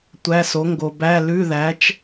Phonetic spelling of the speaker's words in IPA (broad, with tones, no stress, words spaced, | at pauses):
tʷæ˧˥˧so˨˥ ŋɡo˨bæ˧˥˧ lʉ˧˥˧ðæ˨˥t͡ʃ